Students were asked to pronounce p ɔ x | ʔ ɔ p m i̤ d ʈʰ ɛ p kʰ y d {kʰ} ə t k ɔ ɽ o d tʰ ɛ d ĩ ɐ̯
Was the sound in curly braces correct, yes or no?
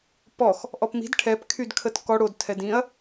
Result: yes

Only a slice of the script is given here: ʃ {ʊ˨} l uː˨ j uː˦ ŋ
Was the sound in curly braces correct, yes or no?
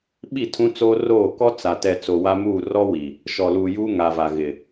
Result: no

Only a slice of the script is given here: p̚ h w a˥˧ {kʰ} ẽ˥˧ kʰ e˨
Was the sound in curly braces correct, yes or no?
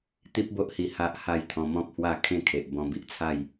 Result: yes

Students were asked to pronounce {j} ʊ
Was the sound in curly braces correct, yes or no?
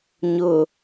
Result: no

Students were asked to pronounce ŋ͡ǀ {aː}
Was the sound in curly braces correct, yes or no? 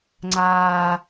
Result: yes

